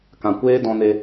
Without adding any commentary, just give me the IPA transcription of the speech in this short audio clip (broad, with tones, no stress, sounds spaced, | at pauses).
k ã˨ kʷ eː˦ d ɔ̃˧ n e˧